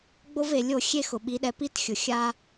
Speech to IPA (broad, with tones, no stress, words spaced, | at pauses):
ɡ͡bo˦ve˨lʲo˦˨ xʲe˦xʊ˨ɓi˨˦ɗɛ˨˦ pi˦txʲʊ˨ xʲa˦